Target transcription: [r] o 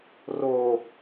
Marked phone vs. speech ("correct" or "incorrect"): correct